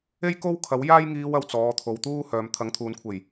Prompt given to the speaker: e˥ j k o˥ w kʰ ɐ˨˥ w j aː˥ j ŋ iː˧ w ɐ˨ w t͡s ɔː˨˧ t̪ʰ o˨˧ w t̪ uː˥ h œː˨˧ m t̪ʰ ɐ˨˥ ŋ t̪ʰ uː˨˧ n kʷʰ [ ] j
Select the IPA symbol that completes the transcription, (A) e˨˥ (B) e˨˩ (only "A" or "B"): B